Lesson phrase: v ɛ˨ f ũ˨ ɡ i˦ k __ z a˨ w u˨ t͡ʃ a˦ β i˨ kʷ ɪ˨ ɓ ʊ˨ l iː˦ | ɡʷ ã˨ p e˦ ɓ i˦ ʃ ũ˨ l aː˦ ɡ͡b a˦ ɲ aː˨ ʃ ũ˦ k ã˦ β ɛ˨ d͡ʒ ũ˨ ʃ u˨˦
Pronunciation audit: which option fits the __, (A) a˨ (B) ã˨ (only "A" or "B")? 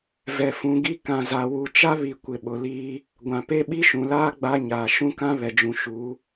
B